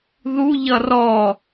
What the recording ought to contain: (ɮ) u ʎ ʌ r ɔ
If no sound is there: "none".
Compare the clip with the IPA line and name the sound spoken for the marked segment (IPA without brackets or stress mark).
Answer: ð